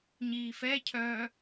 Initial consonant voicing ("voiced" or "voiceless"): voiced